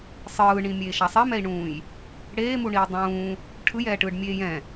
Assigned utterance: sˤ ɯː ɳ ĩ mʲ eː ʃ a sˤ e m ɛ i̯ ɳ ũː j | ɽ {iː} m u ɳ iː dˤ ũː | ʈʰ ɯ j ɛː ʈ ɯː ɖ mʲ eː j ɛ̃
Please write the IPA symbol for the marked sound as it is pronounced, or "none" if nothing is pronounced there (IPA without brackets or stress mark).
eː